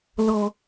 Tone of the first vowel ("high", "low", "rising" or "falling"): high